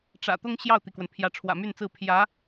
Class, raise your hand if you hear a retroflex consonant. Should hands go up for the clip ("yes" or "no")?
yes